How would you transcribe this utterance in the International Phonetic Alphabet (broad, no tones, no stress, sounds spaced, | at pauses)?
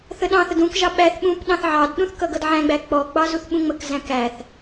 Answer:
θ ə ɗ ɑ̃ θ ə d ũ k ʒ ɑ ɓ æ θ ɓ ũ p ɗ ɑ̃ θ ʕ ɑ d ɗ ũ θ k ʌ ɡ ʌ d ʕ æ̃ ɡ͡b æ k͡p ɔ ɡ͡b ɑ z u θ ɓ ũ ŋ͡m ə k z æ̃ k æ θ